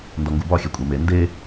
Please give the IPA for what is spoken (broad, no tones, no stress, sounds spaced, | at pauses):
n d ɒ ŋ ɡ u b ɒ xʲ e kʷʼ e m e n d e